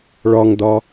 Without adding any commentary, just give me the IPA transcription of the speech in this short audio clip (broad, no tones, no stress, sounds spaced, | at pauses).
ɭ ɒ ŋ d ɒ